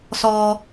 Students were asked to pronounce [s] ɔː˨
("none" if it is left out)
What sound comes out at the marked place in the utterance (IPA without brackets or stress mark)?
s